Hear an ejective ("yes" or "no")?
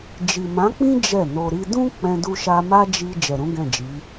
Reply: no